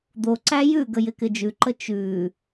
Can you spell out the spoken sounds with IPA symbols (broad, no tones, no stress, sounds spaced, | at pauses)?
d̪ o ǀ æ j ʉ ɡ ə j ɪ k ɪ d͡ʒ ʉ ǃ ə t͡ʃ ʉ